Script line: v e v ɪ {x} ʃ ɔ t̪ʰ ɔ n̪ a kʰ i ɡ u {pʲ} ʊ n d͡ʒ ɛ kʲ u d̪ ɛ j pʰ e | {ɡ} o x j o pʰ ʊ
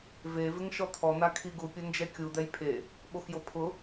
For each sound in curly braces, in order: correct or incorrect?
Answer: incorrect, correct, incorrect

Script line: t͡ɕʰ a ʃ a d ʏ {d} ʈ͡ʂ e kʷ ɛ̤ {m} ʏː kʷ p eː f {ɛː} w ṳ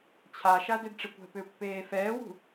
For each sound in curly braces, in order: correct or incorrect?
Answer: correct, incorrect, correct

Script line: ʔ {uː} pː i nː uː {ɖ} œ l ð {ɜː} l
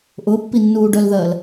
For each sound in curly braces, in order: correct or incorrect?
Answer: incorrect, correct, correct

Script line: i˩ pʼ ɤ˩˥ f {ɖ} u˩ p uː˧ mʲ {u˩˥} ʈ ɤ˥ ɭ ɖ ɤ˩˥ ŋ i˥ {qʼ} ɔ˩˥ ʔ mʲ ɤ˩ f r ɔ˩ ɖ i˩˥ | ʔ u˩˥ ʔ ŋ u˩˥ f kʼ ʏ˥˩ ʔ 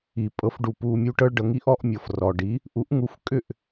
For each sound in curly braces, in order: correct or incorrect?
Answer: correct, incorrect, incorrect

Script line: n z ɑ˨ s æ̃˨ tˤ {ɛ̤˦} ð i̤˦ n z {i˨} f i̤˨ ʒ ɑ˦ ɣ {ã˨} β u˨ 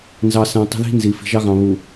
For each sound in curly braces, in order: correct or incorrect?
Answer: incorrect, correct, incorrect

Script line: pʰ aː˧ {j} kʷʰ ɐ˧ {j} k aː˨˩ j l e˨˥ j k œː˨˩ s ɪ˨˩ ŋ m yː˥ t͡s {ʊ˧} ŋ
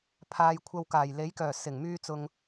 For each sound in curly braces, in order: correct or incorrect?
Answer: correct, incorrect, correct

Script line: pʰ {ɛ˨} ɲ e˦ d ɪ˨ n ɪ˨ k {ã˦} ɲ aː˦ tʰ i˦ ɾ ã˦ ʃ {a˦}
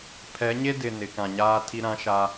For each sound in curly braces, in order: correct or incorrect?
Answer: incorrect, incorrect, correct

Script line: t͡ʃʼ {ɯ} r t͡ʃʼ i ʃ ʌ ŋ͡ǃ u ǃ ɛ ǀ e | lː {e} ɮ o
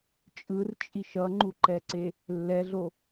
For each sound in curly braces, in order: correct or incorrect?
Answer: correct, incorrect

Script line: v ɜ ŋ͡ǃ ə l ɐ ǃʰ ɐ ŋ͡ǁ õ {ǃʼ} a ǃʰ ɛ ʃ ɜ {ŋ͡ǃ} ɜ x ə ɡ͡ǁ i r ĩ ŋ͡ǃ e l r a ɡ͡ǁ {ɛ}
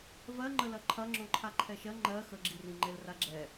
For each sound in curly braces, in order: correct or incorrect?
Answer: incorrect, correct, correct

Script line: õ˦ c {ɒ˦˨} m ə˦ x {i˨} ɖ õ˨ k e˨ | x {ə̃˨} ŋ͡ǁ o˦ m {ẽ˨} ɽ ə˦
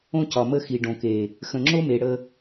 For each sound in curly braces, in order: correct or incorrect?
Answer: incorrect, correct, correct, incorrect

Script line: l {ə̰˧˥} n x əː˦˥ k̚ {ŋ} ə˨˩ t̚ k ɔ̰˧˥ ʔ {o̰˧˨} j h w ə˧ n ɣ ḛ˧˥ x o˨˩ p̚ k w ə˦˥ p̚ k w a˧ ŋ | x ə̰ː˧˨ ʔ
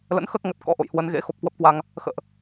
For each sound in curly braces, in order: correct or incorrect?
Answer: correct, correct, correct

